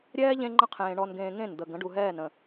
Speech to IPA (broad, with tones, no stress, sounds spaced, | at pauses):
ɾʲ ɛː˦ ʎ ẽ˦ ŋ͡ǃ ə̃˦ qʰ ẽː˨ ɳ ɔ˨ n ɡ ẽː˨ ŋ ẽ˦˨ n d̪ ə˨ ɡ ə̃˨˦ ɖ u˨ ɦ ɛː˦˨ n ə̃˨